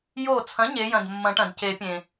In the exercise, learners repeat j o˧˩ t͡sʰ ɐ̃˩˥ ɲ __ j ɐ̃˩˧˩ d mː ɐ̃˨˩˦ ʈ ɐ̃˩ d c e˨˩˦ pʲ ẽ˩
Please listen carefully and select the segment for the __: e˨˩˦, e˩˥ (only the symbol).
e˩˥